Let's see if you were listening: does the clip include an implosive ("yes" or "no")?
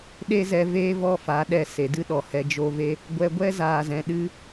yes